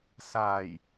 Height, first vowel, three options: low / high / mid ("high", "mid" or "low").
low